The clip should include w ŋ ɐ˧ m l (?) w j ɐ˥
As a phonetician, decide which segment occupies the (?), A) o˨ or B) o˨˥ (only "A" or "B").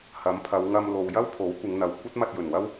A